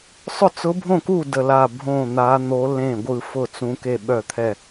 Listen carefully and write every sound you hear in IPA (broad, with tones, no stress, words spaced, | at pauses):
sˤʊ˥˩t͡sʊ˧˥bʱõ˥˩ku˥˩ də˥˩la˥˩ bʱõ˥˩n̪a˧˥ n̪o˧˥lẽ˥˩ ɡʷɯ˥˩fʊ˥˩ t͡sũ˧˥ke˥˩ɓœ˥˩t̪ʰɛ˥˩